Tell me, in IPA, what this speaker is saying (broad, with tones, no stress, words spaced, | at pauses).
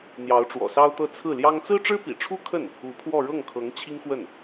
n̪jɑ˧˥ʊ̯ʈ͡ʂwɔ̰˨˩sɑ˥ʊ̯t̪ɤ˥˧ t͡sʰɹ̩˥˩ljɑ˥ŋ t͡sɹ̩˥ʈ͡ʂɻ̩˥pḭ˨˩ʈ͡ʂʰu˥ kʰə˥˩n | u˧˥pʰwɔ˥˧ ɻɤ˥˩ŋkʰɤ˧˥ŋ t͡ɕʰi˥ŋxwə˥˩n